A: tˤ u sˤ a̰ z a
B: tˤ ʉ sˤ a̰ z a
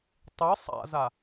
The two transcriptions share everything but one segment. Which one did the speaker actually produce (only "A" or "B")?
B